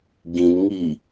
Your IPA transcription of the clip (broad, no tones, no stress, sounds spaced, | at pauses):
ɡ ĩ n ŋ i